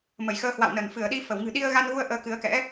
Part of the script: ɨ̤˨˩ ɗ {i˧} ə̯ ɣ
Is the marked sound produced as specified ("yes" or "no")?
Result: yes